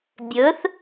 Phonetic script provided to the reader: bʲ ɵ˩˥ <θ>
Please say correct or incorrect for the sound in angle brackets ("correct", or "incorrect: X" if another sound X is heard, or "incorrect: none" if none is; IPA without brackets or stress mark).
correct